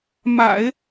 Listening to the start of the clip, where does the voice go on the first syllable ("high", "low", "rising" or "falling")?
low